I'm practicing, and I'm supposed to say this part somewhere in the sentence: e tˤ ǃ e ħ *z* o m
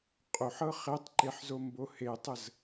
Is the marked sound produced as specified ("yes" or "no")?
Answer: yes